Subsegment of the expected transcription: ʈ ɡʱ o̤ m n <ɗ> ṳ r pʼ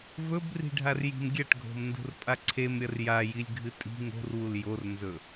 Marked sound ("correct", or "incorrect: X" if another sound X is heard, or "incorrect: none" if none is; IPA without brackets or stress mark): incorrect: d